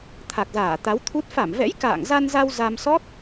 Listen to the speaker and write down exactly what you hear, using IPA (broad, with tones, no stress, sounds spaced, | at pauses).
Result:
t̪ʰ a˨˩ k̚ z aː˧˩ t̪ a˨˦ w t̪ʰ u˦˥ t̚ f a˧˩ m v ɛ̰˧˥ j k a̰ː˧˨ ŋ z a˧ n z a˧ w z a˧ m s ɔ˦˥ t̚